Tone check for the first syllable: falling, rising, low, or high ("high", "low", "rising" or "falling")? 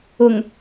low